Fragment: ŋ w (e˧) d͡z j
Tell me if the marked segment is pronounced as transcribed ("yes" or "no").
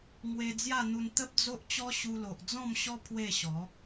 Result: yes